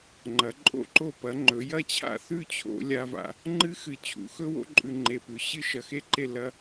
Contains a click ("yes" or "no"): yes